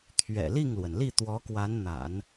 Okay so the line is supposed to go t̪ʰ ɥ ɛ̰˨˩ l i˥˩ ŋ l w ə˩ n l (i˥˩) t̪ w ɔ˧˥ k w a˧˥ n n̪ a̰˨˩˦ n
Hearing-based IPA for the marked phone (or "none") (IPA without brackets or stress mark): i˥˩